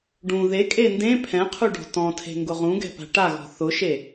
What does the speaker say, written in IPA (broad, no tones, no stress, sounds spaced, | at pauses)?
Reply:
ɖ ũ ð e kʼ e n d ẽ pʰ ɛ̃ qʰ u ɖ ɔ̤ t ɔ̃ tʰ e̤ ŋ ɡ ʊ ʁ ũ ɡ ɛ̤ p a̤ ʈ a ɣ ɔ̤ θ ʊ ʃ e